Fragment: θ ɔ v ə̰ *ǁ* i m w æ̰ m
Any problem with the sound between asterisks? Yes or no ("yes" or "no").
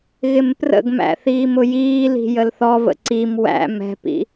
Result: yes